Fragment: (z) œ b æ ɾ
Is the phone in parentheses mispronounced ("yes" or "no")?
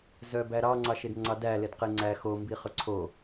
no